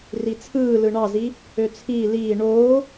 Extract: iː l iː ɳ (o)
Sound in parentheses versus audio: incorrect: oː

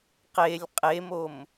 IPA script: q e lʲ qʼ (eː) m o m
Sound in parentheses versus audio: incorrect: e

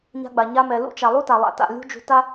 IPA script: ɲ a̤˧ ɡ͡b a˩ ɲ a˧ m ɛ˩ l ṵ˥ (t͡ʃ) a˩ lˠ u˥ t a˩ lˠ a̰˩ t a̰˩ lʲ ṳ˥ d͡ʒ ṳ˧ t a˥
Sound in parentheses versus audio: correct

